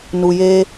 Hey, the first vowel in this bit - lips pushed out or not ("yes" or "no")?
yes